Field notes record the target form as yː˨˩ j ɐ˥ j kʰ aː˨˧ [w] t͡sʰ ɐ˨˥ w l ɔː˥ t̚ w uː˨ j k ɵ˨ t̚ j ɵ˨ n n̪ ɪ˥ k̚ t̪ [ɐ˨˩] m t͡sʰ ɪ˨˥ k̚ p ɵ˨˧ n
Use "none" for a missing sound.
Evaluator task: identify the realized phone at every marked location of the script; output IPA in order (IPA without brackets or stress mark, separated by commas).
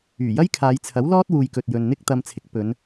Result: j, ɐ˧